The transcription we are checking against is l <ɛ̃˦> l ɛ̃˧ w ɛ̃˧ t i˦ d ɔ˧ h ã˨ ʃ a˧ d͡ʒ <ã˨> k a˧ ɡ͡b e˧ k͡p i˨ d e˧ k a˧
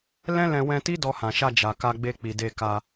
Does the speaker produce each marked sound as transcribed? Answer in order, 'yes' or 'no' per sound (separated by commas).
yes, no